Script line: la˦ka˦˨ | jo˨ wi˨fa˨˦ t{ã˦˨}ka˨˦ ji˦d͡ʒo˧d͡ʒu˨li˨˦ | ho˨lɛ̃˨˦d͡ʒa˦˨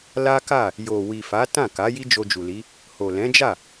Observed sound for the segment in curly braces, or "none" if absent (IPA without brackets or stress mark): ã˦˨